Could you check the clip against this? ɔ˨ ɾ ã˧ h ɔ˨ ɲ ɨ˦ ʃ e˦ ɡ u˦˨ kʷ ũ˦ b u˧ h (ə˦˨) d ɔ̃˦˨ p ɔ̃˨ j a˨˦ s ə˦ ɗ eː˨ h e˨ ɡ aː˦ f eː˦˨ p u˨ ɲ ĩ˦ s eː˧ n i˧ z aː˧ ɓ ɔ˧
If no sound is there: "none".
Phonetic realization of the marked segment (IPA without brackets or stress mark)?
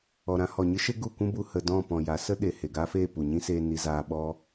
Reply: ə˧